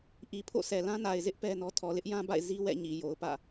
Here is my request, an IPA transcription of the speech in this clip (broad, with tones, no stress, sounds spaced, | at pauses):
ʔ i˨ pʰ o̰˦˨ sʰ ɛ˨ l ã˦ n a˨ ɪ̯ z ɪ˦ ʔ p ɛ˦ n ɔ˦ tʰ ɔ˨ l ɪ˦ ʔ j ã˦ b a̰˦˨ ɪ̯ z i˦ w ɛ̰˦˨ ɲ i˨ j o˨ ʊ̯ p ä̰˦˨